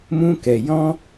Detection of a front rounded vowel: absent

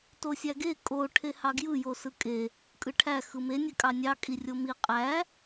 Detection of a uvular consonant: present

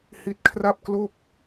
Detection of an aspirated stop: present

